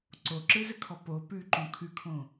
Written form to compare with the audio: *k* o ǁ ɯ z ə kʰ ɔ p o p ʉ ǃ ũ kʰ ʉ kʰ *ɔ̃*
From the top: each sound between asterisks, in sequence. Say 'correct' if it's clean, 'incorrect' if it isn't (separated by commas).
incorrect, incorrect